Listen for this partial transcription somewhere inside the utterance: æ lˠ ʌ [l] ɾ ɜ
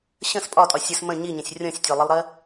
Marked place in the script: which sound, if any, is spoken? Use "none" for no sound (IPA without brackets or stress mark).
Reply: lˠ